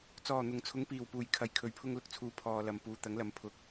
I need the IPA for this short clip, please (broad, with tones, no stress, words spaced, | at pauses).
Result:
t͡sɔː˨˩n̪ʊ˨˩ŋ t͡sʰʊ˨˧ŋpiː˨˩wpuː˨˩jkʰɐ˨˩j kʰɵ˨˩ɥ pʰʊ˧ŋlʊ˨k̚t͡sʰuː˨ pʰɔː˨lɐ˨m puː˨t̪ɐ˨˥ŋlɐ˨m pʰʊ˨k̚